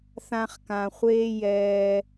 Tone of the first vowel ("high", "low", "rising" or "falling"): high